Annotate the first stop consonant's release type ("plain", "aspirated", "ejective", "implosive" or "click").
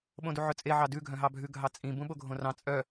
implosive